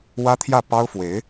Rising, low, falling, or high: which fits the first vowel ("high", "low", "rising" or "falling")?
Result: high